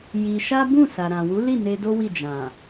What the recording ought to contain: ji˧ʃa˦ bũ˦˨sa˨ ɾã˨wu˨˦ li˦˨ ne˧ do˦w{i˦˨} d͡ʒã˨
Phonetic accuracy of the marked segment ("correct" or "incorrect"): correct